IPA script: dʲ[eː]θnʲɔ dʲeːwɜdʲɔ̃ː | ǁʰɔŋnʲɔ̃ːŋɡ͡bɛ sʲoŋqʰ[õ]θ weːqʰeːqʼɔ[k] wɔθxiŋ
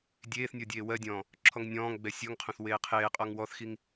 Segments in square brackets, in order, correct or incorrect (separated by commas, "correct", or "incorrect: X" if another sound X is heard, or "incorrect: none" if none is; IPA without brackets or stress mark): correct, correct, incorrect: ŋ